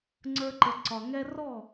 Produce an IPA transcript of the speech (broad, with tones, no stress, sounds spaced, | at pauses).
ŋ͡ǀ ə˞˧ ǃ ə˨ ǀ ɒ˨ ŋ ɛ˦ r ɔ˦˨